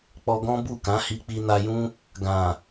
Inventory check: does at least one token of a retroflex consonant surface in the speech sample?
no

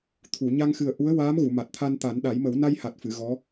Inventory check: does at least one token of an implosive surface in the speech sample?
yes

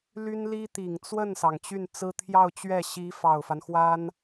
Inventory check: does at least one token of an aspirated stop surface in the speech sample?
yes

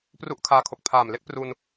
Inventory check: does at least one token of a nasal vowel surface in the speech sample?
no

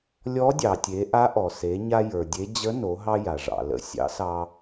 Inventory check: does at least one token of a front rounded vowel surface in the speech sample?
no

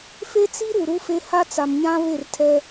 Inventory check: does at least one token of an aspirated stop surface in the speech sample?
yes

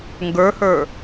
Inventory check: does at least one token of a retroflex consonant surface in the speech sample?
no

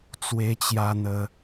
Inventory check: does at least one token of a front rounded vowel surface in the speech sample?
no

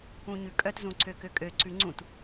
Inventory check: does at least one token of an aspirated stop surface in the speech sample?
no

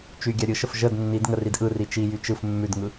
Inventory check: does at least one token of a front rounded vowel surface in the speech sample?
yes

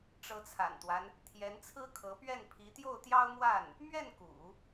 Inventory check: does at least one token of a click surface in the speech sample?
no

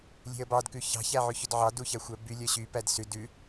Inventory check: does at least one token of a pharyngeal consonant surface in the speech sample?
yes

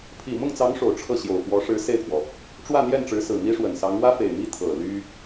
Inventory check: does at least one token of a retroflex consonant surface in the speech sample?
yes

